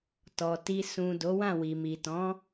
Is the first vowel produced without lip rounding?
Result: no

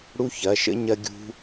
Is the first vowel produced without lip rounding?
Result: no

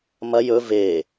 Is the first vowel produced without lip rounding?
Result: yes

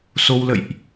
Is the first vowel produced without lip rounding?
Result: no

